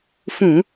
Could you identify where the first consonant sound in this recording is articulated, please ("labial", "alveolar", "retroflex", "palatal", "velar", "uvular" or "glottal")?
labial